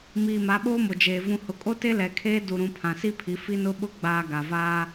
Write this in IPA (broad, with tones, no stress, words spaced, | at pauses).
miː˨ma˨˦ɓoː˦ mo˨d͡ʒeː˨ vũ˨hʊ˨kʼo˦ te˦lɛ˨kʰeː˦ du˨ɾũ˨ pʰã˨si˦pʰi˨˦ fi˦nʊ˦ɓʊ˦ ɡ͡baː˨ ɡa˨vaː˦